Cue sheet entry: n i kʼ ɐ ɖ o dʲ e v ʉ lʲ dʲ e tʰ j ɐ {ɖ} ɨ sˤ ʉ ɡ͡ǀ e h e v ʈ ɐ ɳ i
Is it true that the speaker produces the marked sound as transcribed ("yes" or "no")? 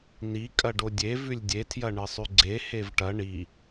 no